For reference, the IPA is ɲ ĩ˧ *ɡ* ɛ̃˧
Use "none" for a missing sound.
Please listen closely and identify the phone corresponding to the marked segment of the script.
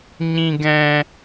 ɡ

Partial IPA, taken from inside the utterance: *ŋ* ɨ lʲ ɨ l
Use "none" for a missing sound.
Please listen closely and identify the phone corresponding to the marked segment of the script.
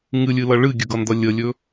ŋ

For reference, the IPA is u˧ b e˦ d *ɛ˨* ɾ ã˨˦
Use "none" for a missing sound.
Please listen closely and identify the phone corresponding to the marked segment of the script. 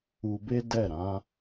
ɛ˦˨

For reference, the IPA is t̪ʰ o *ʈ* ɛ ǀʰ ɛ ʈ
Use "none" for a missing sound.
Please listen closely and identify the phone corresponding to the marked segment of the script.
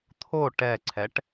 ʈ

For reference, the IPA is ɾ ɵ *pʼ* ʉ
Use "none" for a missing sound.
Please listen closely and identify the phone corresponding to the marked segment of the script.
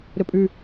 pʼ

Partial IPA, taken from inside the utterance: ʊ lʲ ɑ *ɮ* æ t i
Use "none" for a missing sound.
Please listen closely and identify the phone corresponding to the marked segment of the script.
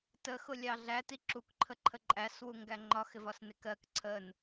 ɮ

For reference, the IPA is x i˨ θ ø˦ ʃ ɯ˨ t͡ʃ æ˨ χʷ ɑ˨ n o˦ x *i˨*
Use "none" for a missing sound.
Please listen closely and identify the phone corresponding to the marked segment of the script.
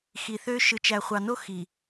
i˨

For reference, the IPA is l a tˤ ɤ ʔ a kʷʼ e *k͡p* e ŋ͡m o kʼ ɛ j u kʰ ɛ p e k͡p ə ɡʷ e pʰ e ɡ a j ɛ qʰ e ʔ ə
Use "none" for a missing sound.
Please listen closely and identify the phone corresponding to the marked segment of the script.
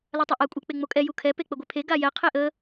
k͡p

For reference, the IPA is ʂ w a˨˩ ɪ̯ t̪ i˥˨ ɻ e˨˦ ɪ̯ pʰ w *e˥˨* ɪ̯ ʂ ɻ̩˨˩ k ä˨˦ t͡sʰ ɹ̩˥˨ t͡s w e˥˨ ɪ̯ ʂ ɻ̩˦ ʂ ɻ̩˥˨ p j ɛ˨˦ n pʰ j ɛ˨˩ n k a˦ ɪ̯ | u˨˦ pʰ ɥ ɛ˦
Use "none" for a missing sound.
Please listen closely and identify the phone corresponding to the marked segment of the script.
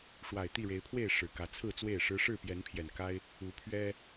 e˥˨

